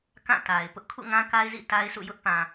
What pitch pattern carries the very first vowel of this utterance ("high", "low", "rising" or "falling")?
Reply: falling